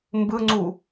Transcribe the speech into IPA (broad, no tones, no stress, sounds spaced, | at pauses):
m b ɯ ŋ͡ǀ u